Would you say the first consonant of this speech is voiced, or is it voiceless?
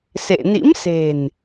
voiceless